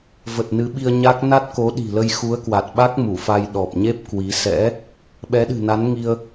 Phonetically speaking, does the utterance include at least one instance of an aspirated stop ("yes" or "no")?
no